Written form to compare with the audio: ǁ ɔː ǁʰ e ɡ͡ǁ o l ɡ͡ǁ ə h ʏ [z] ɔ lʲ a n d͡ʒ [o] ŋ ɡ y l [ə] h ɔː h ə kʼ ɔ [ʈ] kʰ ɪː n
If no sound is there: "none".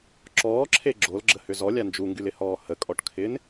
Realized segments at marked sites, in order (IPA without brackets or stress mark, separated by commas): z, u, ɪ, ʈ